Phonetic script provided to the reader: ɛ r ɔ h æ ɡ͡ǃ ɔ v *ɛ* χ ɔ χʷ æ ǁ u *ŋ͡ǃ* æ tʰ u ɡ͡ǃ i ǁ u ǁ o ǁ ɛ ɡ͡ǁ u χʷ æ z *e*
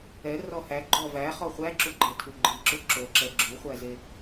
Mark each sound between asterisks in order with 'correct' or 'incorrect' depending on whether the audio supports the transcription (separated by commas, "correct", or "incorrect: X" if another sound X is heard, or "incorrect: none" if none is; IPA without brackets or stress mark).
incorrect: æ, incorrect: ɡ͡ǃ, correct